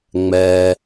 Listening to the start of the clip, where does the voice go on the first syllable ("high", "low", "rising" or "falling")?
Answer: low